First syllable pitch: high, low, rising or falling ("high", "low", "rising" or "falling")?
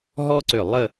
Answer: high